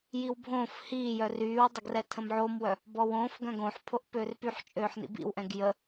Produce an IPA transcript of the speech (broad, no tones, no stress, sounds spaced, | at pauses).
j i w bʱ õː f h iː j œ r yː w dˤ ə ɡ r ɛ tʰ ə̃ m ʕ o m w œ | b ɔ w õː f ɡ œ̃ ɡ õ ħ pʰ o ʔ p øː r p y ħ t͡ʃʼ øː ħ n ḭ b ḭ w ʔ ɛ̃ ɡ j ə